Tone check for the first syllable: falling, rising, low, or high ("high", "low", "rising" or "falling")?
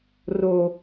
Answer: low